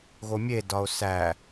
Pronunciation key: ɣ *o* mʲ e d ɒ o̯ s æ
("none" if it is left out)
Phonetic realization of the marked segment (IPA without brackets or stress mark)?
o